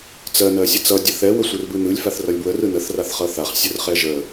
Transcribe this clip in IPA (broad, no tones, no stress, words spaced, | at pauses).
t͡sɜ nɜsʲət͡sʌ dʲəθɛ wəsʷɯrbɯn̪ɯlʲ faθrʌlʲbwə rɯnəθ raθχʌθaχ sʲərχɛʒə